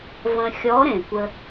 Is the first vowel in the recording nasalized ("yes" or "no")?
yes